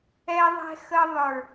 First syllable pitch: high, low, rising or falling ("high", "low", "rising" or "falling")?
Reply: low